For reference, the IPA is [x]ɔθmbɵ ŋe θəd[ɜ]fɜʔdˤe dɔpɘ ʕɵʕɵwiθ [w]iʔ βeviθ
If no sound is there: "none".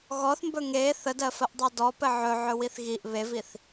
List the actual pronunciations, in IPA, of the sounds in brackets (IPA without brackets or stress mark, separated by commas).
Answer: ɣ, ɜ, ɣ